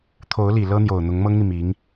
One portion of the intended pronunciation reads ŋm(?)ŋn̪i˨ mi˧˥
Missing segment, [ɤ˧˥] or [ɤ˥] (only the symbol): ɤ˥